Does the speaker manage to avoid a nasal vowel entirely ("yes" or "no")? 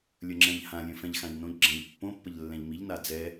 no